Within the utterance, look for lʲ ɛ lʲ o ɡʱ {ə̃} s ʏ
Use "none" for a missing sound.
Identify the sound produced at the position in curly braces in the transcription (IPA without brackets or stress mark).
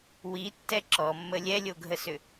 ə